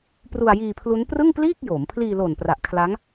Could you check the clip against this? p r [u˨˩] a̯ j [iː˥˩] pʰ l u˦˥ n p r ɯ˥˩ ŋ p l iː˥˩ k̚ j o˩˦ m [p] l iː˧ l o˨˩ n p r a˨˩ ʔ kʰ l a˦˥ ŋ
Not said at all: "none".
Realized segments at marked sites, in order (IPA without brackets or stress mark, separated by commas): u˧, iː˧, pʰ